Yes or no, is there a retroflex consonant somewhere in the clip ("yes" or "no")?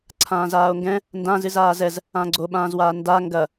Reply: no